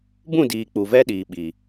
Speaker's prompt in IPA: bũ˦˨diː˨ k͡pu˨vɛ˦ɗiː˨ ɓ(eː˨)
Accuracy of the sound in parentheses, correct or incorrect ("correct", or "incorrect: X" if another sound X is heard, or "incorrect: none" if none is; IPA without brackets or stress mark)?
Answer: incorrect: iː˨